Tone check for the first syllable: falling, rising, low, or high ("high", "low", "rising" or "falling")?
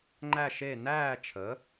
falling